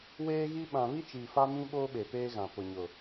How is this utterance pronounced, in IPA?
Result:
w eː˦ ɣ i˦ ɓ ã˨ β i˦ t͡ʃ iː˨ f a˦ m ĩ˦ ɓ oː˦ ɓ e˨ p eː˦ ɣ ã˨ p ʊ˨ ɲ ʊ˨

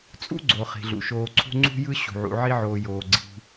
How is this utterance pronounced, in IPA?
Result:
t͡sʼ ṵ˥ ɡ͡ǀ o˩ χ i̤˩ ɮ ṵ˩ ʃ oː˨ ǀʰ ṳ˦ ŋ͡ǀ ṳ˦ j ɯ˦ ɕ ṳ˩ ʕ ṵ˨ ʕ i˦ ʕ oː˨ j oː˩ ɡ͡ǀ i̤˨

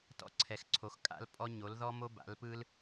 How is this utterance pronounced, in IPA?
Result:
t ɔ̰˥ ǀʰ ɛ˨˥ x ǀʰ o˨˥ x kʼ a̰˥ l pʼ ɔ˥ ɲ o˨˥ l ð ɔ˥ m o˥ b a̰˨˥ l p ɯ˥ l

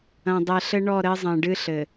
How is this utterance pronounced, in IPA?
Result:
ɐ̃˨ dˤ ɛ˨ ɬ ɘ˦ ɳ ɔ˦˨ ɾ ɘ˦ zˤ ɐ̃˨ ɖ ɨ˦ ɬ ɘ˨

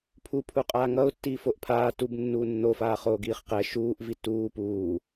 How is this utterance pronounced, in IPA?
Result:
pʰ u pʰ u qʼ aː ŋ ʌ ʊ̯ tː iː f o ʔ pʰ aː t u b nː uː nː o f aː χ oː ɡ iː χ q ɛ ʃ uː ʔ v i t uː p uː

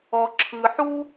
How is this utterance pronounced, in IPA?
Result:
ɔ˩ ǁʰ ɯ˩ ħ u˥

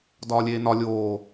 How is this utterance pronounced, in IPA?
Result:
d ɒː lʲ eː n ɒ lʲ oː

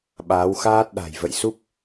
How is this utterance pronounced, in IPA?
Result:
ɓ aː˨˦ w x aː˦˥ t̚ ɗ a̤˨˩ j v ə̰˧˨ j s u˦˥ p̚

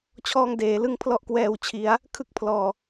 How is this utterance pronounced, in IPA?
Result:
t͡ɕʰ ɔː˧ ŋ d eː˩˦ l ɯ˧ ŋ pʰ l ɔ˦˥ ʔ k w ɛː˨˩ w t͡ɕʰ i˩˦ a̯ | kʰ ɯ˥˩ k̚ pʰ l ɔː˨˩

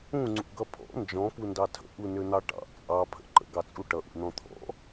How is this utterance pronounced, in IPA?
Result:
ũ ŋ͡ǀ ṵ ɡ ʌ pʰ ɔ̰ n d͡ʒ ɔ̃ p u n d ɑ tʰ ə̰ ʔ u n ø n̪ ɑ ʈ ɑ̰ t͡sʼ ɑ pʰ ə̰ ǃ ə̰ ɡ ɑ t͡sʼ u ʈ ʌ ʔ ṵ n̪ ɔ̃ t̪ʰ ɔ̰

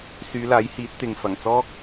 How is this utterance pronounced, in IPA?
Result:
s yː˨˧ l aː˨˥ j h iː˨˥ t̚ t̪ ɪ˨ ŋ f ɐ˨˩ ŋ t͡s ɔː˥ k̚

